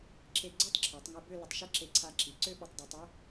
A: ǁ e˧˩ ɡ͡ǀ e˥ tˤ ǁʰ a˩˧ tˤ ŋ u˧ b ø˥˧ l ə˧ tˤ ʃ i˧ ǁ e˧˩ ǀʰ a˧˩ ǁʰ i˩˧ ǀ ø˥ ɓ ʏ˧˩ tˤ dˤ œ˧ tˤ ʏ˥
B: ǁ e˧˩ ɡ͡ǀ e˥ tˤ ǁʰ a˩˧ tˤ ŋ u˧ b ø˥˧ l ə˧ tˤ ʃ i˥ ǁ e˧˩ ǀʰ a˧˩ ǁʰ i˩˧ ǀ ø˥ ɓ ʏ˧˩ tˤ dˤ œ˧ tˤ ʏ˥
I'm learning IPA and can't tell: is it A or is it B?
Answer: B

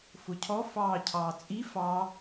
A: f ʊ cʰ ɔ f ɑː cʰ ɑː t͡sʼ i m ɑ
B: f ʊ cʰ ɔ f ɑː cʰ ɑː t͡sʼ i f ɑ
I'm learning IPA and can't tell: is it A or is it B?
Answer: B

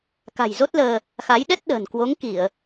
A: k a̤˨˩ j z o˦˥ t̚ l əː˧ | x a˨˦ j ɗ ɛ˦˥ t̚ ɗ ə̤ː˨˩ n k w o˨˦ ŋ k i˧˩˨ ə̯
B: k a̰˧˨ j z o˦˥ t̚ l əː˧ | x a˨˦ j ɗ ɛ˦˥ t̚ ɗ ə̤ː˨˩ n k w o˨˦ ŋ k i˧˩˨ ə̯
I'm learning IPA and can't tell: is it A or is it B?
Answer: A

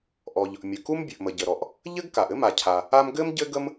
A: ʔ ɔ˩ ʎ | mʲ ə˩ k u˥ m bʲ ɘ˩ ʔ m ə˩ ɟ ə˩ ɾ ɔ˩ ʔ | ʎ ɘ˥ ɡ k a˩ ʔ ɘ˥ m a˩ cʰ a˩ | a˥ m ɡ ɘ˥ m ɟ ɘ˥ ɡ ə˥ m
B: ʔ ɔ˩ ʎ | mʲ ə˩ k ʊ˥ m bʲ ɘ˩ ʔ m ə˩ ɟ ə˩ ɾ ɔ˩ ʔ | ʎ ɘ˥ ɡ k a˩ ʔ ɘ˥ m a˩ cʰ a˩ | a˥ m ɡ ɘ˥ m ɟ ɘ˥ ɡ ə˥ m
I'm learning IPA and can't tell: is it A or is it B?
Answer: A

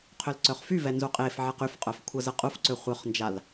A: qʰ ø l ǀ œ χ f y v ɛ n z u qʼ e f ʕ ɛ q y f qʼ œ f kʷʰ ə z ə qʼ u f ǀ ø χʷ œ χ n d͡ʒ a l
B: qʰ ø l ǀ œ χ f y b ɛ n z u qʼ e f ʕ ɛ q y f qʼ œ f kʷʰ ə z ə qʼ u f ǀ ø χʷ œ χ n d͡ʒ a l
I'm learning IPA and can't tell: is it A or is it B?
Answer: A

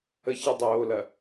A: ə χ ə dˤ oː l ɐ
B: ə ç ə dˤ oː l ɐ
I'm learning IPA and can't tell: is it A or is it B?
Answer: B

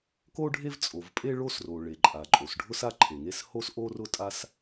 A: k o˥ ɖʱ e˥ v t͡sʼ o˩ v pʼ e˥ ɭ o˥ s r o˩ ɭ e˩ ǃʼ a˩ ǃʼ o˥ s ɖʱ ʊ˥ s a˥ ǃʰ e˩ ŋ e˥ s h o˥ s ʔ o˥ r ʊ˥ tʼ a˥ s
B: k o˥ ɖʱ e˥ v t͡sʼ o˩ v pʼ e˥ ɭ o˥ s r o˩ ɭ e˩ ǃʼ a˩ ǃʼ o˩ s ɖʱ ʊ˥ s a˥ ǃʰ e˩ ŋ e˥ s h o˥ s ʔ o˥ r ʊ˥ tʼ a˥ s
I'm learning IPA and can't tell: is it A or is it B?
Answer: B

